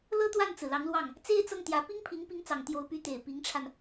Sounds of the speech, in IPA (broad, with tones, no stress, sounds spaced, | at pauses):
l ɤ˥ t̪ w a˥˩ n t͡s ɹ̩˩ l ɑ˧˥ ŋ l w ɑ˥˩ ŋ | t͡s e˥ ɪ̯ t͡s ɤ˥˩ ŋ t̪ j ä˧˥ p i˥ ŋ pʰ i˧˥ ŋ p i˧˥ ŋ t͡s ɑ˨˩ ŋ t̪ j o˧˥ ʊ̯ p y˧˥ t̪ e˨˩ ɪ̯ p i˧˥ ŋ ʈ͡ʂʰ a˧ n